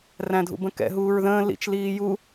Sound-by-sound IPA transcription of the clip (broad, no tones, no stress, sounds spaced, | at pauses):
r æ̃ dʱ ṵ b ə̃ k ɛ̰ ɦ uː ɹ ð ə̃ː l ḭ t͡ʃ l iː j u